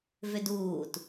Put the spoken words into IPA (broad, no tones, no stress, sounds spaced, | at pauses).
v ʏ d uː t